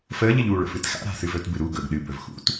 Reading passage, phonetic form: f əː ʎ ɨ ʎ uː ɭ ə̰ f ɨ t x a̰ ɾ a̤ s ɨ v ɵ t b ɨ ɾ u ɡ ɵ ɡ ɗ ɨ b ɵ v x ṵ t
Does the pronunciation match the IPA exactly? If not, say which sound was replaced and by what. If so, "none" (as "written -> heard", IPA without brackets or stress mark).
none